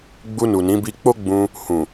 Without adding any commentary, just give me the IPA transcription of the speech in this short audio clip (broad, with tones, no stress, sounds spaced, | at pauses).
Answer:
ɡ͡b u˧ n u˨ n ĩ˨˦ b i˧ k͡p o˦ ɡ͡b ũ˧ | h ũ˨